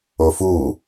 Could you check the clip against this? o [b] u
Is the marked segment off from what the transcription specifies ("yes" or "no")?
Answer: yes